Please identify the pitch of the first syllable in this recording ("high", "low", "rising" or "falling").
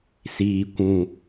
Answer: low